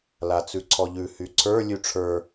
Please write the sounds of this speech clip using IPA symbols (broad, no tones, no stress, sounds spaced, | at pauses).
l a t͡s ʉ ǀʰ ɔ ʎ ʉ h y ǀʰ ə˞ lʲ ʉ ʈ͡ʂʰ ə˞